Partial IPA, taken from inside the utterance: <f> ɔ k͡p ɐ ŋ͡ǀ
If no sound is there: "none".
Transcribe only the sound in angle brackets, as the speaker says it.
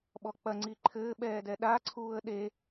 ɓ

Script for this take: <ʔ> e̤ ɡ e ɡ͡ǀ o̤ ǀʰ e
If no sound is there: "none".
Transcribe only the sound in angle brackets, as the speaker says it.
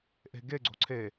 ʔ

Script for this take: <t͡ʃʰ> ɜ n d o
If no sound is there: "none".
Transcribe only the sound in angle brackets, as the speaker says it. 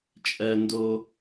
t͡ʃʼ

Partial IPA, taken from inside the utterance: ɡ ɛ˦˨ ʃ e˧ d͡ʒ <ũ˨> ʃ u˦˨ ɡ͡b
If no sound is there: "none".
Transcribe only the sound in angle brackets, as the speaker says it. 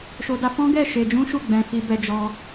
ũ˦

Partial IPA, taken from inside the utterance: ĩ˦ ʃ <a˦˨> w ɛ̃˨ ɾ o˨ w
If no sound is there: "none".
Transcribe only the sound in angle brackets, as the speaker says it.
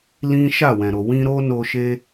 a˦˨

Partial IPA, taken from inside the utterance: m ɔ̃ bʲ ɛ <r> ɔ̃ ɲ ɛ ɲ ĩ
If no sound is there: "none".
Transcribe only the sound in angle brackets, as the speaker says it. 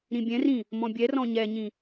r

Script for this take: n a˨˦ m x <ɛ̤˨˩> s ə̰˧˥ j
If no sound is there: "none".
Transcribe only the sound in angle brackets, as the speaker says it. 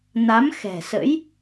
ɛ̤˨˩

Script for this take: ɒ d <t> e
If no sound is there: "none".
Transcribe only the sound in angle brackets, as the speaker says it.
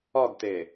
t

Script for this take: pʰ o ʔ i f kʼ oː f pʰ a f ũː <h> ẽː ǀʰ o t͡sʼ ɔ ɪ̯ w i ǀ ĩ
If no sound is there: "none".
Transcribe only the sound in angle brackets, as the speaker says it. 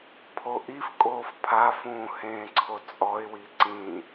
h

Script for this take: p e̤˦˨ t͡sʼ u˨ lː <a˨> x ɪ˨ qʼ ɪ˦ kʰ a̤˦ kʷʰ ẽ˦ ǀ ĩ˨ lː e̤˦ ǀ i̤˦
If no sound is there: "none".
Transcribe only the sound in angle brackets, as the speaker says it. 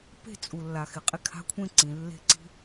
a˨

